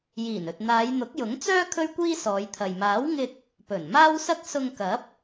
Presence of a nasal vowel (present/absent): absent